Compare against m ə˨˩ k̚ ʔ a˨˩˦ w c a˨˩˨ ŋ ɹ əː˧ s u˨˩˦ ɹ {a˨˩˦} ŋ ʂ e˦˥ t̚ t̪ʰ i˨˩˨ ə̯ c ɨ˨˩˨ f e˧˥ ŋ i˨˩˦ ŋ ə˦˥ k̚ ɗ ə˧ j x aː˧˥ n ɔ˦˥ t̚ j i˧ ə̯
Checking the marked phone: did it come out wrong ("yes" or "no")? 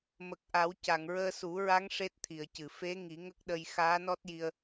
yes